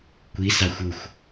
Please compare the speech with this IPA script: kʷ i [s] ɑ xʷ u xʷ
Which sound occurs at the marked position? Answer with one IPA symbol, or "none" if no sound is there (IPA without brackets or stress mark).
s